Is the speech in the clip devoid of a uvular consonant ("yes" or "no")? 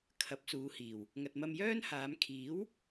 yes